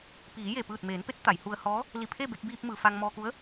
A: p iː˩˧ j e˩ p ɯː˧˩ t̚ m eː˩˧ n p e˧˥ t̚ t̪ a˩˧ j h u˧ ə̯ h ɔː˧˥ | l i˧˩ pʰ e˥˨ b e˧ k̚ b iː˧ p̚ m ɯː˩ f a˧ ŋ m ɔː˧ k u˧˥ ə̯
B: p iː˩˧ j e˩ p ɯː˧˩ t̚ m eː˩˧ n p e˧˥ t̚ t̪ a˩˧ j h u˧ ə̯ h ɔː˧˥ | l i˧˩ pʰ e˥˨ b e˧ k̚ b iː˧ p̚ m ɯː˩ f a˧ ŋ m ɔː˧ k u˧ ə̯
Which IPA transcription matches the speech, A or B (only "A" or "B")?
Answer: A